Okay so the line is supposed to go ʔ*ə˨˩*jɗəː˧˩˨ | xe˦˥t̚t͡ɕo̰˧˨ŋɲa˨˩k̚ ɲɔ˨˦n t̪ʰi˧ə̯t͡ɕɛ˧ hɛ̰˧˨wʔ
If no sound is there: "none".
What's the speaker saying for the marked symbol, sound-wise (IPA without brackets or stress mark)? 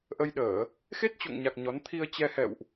ə˧